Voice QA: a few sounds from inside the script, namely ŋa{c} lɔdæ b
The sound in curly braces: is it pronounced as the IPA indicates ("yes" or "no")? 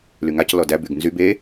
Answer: yes